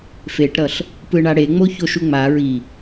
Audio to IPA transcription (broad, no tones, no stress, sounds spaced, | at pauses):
f e ʈ ɾ ʌ ɬ | p ɯ ɳ a ɽ e ŋ͡m o ç o ʃ u ŋ͡m a ɹ i